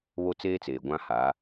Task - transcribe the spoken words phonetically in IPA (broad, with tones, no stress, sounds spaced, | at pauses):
β o˦ t͡s eː˦ t͡s eː˨ ɡʷ ã˦ h a˨˦